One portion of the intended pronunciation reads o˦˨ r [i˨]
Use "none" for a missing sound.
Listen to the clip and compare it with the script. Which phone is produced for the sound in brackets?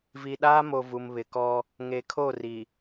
i˨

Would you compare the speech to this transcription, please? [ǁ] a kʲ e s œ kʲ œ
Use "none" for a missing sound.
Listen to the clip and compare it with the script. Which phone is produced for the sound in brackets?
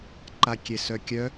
ǃ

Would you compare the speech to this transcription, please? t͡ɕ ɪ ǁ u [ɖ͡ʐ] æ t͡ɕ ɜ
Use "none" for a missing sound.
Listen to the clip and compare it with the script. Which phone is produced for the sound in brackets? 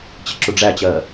ɖ͡ʐ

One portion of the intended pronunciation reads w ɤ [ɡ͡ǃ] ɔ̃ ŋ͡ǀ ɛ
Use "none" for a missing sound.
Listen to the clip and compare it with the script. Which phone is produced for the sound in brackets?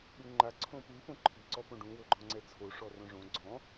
ɡ͡ǃ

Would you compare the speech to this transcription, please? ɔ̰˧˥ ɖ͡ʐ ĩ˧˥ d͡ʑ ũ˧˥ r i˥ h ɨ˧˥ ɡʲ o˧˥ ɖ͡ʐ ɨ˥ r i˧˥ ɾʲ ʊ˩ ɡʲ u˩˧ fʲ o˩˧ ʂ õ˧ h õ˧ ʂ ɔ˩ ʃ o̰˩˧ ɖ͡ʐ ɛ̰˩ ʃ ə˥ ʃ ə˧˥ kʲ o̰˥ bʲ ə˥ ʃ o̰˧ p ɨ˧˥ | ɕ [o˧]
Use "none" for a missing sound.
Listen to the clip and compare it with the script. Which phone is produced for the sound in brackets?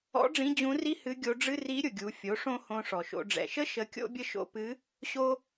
o˥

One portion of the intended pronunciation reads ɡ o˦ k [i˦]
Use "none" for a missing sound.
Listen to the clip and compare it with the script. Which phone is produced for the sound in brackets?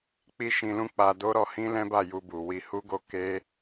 e˦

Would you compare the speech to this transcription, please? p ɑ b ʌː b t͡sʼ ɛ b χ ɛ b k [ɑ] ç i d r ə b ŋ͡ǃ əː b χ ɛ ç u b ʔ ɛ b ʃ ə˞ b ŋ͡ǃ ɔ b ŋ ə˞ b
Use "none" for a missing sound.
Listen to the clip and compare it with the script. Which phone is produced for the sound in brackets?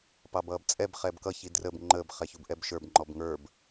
ʌ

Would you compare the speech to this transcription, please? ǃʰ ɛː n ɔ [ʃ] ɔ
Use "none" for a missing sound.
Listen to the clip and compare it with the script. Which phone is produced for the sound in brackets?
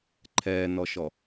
ʃ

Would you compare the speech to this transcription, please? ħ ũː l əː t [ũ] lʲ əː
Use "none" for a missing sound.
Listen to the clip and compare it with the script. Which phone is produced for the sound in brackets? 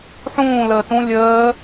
ũ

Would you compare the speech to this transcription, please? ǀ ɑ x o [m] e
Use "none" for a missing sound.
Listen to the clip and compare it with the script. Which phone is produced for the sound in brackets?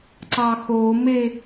m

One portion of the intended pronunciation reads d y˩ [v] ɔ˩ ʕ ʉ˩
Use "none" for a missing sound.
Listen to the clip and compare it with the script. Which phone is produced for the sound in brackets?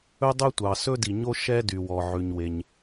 w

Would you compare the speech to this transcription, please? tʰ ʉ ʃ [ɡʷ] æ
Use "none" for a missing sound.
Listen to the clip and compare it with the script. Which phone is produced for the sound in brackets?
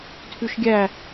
ɡʲ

